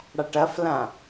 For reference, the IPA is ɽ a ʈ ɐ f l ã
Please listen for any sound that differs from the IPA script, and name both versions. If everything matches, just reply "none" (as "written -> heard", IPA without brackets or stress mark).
none